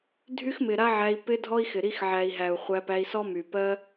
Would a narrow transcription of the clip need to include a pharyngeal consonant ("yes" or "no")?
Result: yes